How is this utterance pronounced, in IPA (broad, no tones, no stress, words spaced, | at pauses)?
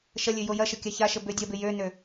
ʃɐlʲø jojɐʃə kʲaçaʃə bødʲɐbɪ jønø